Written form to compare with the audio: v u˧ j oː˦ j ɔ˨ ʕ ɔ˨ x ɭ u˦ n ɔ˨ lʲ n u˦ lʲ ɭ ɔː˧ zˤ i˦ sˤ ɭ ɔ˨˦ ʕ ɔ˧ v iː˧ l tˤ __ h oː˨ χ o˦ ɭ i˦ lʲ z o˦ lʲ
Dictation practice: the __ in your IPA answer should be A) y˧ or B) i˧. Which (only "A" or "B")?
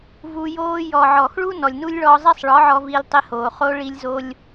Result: B